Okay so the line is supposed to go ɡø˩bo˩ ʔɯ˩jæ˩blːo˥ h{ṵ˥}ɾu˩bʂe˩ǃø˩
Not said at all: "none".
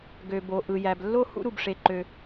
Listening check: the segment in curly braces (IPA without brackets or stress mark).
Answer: ṵ˥